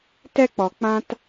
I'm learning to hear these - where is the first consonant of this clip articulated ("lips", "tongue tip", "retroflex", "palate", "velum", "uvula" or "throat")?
tongue tip